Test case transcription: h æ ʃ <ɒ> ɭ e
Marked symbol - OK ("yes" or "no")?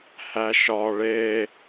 yes